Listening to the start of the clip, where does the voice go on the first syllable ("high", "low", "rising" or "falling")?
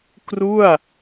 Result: falling